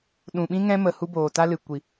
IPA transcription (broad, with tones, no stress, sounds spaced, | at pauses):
ɗ ũ˨ ɓ ĩ˦ ŋ ɛ̃˦ m ə˨ h u˦ b oː˨ t a˦ l ɨ˨ kʷ i˨